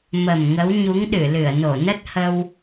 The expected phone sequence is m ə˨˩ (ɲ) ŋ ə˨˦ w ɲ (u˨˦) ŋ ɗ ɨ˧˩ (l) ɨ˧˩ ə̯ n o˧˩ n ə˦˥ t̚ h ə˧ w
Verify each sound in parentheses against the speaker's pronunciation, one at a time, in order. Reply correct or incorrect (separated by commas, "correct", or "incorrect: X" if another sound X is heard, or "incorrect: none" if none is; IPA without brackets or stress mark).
incorrect: m, correct, correct